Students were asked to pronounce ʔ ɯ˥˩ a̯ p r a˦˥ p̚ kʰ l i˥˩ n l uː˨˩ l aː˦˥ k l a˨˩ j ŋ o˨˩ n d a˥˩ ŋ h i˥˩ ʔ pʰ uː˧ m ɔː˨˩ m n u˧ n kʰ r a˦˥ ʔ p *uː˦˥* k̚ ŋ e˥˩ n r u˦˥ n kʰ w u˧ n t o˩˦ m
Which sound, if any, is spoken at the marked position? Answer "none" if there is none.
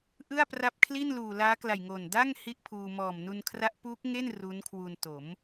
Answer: uː˦˥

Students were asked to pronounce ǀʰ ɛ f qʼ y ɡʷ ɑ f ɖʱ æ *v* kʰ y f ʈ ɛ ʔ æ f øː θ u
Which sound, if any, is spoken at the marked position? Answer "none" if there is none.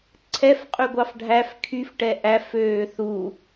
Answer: f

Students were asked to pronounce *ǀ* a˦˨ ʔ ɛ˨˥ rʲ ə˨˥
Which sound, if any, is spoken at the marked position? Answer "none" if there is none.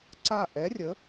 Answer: ǀ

